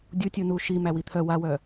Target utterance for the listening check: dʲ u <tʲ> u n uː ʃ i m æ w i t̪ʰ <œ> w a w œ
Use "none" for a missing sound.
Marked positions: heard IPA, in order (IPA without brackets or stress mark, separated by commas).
tʲ, œ